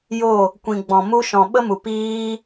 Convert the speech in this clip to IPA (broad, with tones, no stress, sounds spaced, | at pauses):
j o˦˨ | kʷ ĩ˨ ɡ͡b ɔ̃˨ m u˧ ʃ ɔ̃˨ ɓ ə˦ m u˨ p iː˦